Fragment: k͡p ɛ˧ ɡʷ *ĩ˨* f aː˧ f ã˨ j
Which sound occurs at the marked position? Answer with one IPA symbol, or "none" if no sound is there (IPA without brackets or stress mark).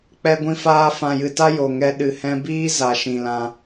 ĩ˧